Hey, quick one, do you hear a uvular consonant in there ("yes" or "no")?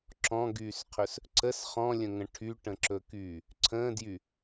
yes